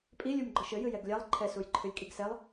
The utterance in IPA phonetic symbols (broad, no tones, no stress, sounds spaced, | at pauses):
pʼ i lʲ u m ɡ͡ǃ ɘ ʃ ɘ j ɨ j ɛ ɡ lʲ a lˠ ǃʰ ɛ s u j ǃʰ ɨ lʲ kʼ i ɡ s ɛ lˠ